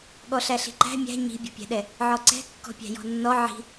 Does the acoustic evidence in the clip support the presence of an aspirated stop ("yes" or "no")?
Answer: no